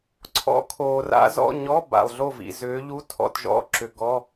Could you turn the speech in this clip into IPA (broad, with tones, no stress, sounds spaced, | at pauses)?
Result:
ǀʰ ɔ̰˧˥ kʰ oː˨ r a̰˧˥ z ɔ̰˧˥˧ ɲ ɔ˧˥˧ b a̰˨ lˠ ɮ o˥˨ v ḭ˨ z ʏː˧˥ ʎ u˧˥˧ tʰ ɔ̰˥˨ t ʒ ɔ̰˧˥˧ ǁ ʏ˨ ɡ ɔ˧˥˧